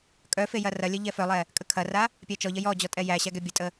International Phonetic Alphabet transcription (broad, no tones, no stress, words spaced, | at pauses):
kʼœfe jɐrɐlʲɜ ʎɛfœlˠɛ | kʼəkʰɐra | pʲæt͡ʃɔʎɐ jɔd͡ʑɔ tʼɛjæɕæ ɡɛbʲətʼə